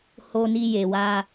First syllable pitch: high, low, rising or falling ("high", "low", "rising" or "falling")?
low